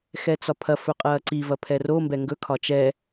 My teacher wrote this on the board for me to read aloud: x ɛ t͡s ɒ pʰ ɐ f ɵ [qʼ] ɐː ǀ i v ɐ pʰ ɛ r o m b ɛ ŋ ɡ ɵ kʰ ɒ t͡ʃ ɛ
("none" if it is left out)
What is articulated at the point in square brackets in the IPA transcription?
qʼ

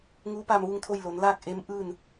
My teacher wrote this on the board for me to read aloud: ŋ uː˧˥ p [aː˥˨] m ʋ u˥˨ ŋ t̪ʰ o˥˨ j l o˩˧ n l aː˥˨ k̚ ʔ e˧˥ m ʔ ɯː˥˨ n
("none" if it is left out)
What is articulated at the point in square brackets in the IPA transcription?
aː˧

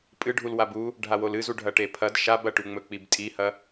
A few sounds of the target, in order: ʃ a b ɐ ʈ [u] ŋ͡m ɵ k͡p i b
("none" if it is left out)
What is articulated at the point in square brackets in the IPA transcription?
ʉ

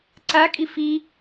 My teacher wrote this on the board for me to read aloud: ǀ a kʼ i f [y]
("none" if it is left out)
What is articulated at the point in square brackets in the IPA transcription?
i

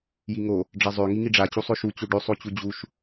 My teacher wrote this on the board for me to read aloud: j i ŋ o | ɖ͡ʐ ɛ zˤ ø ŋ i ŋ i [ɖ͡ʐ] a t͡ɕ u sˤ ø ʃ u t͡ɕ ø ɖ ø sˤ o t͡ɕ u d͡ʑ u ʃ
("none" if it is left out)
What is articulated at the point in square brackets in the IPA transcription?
ɖ͡ʐ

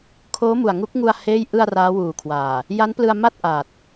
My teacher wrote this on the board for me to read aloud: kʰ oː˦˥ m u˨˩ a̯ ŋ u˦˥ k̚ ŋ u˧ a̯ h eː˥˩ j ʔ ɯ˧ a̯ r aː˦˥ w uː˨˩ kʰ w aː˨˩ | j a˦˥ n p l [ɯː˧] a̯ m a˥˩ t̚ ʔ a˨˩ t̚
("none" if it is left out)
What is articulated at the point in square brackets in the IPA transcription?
ɯ˧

